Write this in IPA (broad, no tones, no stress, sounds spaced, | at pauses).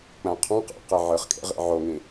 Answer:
k͡p æ̃ qʰ ɑ̃ q æ̰ q e ʕ ɯ χ kʼ ḛ ʁ ḭ ʕ o ŋ ĩ